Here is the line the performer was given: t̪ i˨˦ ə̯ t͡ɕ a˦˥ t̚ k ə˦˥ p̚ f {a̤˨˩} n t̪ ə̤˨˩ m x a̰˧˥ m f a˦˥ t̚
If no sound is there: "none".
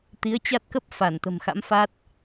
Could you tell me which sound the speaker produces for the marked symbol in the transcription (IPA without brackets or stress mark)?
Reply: a˧˩